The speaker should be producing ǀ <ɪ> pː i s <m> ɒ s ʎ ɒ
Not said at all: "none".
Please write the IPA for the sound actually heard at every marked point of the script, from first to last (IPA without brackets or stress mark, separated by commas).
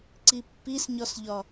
i, ɲ